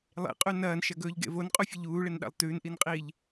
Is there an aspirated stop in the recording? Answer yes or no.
no